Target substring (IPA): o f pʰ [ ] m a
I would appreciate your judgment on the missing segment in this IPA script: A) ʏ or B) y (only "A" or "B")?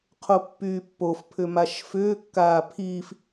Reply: A